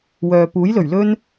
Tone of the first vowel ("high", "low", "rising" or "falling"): low